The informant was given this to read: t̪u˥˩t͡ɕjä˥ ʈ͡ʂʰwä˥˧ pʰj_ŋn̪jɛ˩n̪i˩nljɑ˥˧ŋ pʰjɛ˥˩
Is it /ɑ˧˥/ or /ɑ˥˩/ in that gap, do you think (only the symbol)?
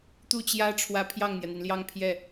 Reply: ɑ˥˩